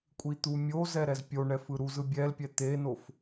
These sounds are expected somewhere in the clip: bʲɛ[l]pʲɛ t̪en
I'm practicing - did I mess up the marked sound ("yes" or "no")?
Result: no